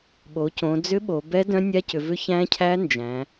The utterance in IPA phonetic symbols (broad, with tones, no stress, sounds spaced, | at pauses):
ɓ o˩˧ c õ˩˧ d͡z ʏ˦˥ ɓ o˩˧ b ɛ˦˥ d œ̃˦˥ nʲ a˦˥ c ʏ˩˧ v ʏ˦˥ ç æ̃˦˥ cʰ æ˦˥ n d͡ʒ æ̃˩˧